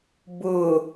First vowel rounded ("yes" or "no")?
yes